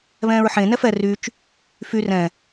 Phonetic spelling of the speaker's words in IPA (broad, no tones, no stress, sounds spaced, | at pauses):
β ɛ̃ː ɹ ħ ẽ n ɛ f ɛ r y t͡ʃ | f y r ɛ̃